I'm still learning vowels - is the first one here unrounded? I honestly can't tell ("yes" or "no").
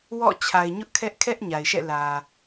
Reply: no